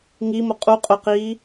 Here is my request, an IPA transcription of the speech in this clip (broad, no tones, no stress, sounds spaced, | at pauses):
ŋ i m ʊ qʼ u qʼ ʊ q iː